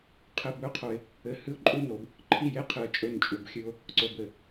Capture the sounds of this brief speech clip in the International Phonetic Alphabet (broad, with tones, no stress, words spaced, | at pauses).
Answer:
qʰɘ˧bɵ˦qʰo˧ɪ̯ | ɘ˧hɨ˦ʊ̯ǃʼu˦no˨˦b | ǃʰi˦˨je˦ qʰɨ˧ə̯t͡ʃʼɵ˦nt͡ʃʼu˧bxʲɨ˦ʊ̯ | ǀo˦bɘ˨